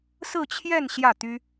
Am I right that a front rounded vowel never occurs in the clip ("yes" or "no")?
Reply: no